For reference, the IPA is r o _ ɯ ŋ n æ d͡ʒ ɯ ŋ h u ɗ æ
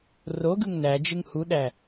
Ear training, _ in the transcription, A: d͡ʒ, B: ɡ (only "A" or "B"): B